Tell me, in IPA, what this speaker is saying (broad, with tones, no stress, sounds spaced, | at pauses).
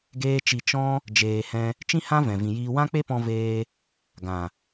ɡ eː˦ t͡ʃ i˧ t͡ʃ ɔ̃˦ | d͡ʒ eː˧ h ɛ̃˦ | t͡ʃ ĩ˦ h ã˦ v ɛ̃˨ v ĩ˨ j iː˧ w ã˦ k͡p e˦ p ɔ̃˧ v eː˧ | ɡ ã˨